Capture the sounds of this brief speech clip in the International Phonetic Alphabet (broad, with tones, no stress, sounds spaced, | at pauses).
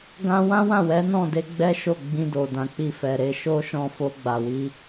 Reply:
ɡ ã˦ w ã˦ w ã˦˨ w ɛ˨˦ n ɔ̃˦˨ d e˧ ɡ͡b ɛ˦ ʃ o˦˨ ɡ͡b ĩ˧ d o˨ d ã˨ k͡p i˧ f ɛ˨ ɾ e˧ ʃ o˦ ʃ ɔ̃˦˨ f o˧ ɡ͡b a˨ w i˧